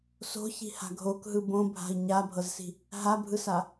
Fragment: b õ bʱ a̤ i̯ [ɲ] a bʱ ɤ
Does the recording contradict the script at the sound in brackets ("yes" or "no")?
no